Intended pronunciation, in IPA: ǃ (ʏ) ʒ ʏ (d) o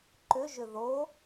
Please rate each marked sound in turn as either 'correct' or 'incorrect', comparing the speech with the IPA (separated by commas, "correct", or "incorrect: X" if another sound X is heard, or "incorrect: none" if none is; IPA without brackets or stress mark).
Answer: correct, incorrect: ð